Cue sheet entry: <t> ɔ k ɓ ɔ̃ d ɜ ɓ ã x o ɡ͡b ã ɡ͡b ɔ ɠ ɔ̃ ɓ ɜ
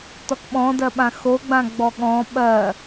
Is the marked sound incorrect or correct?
correct